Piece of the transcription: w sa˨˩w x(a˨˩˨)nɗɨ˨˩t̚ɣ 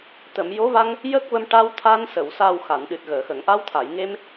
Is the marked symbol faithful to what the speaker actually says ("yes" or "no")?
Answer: yes